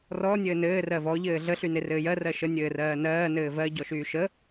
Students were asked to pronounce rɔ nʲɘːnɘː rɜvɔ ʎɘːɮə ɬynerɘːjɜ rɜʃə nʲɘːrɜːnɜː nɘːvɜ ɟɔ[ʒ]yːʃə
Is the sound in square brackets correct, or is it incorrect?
incorrect